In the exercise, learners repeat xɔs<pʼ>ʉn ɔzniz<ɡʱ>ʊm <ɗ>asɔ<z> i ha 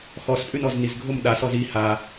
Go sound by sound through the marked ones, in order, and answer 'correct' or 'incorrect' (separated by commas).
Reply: correct, correct, correct, correct